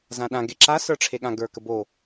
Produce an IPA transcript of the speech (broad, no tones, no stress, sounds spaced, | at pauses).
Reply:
z ã ɗ ã ɡ e ǁ a s ə˞ ʈ͡ʂʰ e ɠ ã ɡ ə˞ k ə b o